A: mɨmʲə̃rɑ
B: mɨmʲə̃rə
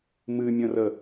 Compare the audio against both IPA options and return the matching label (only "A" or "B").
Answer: B